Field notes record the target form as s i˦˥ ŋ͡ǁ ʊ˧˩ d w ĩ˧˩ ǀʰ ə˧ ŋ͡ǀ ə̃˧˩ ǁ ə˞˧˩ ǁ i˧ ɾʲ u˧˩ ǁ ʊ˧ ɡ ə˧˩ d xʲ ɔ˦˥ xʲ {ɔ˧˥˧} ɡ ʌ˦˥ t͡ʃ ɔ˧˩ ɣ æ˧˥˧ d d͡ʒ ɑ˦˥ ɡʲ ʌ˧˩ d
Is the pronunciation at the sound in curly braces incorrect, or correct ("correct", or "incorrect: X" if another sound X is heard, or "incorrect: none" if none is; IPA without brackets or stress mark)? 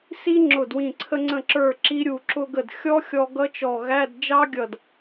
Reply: incorrect: ɔ˧